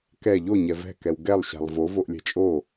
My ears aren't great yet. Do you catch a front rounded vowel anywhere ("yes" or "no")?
no